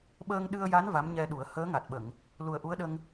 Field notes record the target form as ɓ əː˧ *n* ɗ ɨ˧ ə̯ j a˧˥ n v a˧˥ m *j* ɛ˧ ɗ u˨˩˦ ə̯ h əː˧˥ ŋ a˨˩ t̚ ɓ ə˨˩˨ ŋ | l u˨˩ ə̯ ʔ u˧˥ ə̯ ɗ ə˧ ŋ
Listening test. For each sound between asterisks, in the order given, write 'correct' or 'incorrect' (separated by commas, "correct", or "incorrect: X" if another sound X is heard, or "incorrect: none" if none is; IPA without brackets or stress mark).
incorrect: ŋ, incorrect: ɲ